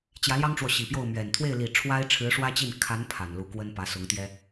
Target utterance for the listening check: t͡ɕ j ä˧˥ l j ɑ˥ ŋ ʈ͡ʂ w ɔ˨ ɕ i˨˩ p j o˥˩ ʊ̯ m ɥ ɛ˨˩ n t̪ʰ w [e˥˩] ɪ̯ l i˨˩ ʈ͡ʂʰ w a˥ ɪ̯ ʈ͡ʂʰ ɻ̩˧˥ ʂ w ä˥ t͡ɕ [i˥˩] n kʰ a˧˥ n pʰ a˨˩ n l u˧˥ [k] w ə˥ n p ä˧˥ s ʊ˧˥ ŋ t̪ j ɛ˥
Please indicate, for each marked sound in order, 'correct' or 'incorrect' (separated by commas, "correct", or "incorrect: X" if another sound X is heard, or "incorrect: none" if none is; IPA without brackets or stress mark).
correct, correct, correct